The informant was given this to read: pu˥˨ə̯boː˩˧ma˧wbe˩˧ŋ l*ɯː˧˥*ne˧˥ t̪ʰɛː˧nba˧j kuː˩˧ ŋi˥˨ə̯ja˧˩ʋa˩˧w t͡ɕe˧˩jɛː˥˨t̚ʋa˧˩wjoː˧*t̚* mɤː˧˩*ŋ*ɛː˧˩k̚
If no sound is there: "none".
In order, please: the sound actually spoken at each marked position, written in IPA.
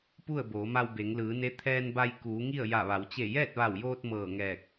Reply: ɯː˩˧, t̚, ŋ

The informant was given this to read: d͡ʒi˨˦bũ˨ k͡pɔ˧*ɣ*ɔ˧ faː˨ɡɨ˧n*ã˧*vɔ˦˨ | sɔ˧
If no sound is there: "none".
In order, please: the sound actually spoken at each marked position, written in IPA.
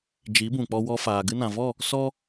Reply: w, ã˨

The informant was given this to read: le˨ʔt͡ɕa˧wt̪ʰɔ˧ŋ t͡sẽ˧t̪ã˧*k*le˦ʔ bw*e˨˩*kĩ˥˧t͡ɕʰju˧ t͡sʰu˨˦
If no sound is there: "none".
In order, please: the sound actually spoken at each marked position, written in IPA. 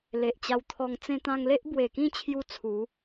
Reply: ŋ, e˨˩

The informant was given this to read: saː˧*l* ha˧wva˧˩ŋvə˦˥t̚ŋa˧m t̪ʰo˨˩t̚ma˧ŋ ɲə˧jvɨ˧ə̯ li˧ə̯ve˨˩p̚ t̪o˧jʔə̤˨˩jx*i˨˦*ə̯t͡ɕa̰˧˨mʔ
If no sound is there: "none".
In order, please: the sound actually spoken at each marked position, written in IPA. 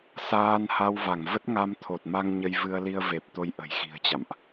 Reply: n, i̤˨˩

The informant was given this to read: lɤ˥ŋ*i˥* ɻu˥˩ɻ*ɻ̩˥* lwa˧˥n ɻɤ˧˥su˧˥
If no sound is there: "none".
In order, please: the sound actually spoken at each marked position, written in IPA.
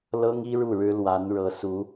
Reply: i˥, ɻ̩˥

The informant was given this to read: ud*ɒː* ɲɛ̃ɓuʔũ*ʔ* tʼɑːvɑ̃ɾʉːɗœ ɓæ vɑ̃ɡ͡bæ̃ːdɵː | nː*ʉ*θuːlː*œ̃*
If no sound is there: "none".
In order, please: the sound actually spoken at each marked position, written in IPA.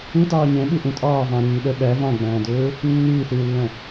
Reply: ɑː, none, ʉː, œ̃

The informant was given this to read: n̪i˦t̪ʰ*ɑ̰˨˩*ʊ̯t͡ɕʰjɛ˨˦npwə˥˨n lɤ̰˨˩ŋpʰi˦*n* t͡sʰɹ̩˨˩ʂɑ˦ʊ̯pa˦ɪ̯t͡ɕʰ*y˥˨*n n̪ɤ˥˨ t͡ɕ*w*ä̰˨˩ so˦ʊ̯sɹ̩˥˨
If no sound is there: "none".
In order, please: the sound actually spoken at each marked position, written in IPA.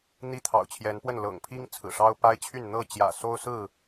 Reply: ɑ̰˨˩, ŋ, y˥˨, j

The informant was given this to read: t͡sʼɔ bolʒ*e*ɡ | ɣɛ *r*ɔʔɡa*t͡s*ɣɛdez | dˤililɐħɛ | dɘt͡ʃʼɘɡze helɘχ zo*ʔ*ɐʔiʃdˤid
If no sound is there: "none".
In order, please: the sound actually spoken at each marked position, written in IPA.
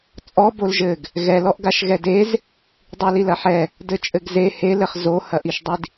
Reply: ɘ, l, ʃ, h

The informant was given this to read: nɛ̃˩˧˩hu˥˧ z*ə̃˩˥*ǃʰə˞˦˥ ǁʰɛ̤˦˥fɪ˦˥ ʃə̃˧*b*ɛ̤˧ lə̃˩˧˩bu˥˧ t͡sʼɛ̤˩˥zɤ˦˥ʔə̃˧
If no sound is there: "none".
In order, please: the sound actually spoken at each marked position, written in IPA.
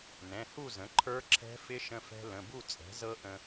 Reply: ə̃˩˥, f

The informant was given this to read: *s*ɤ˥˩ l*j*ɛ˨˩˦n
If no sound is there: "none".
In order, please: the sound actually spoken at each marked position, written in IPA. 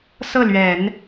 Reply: s, ɥ

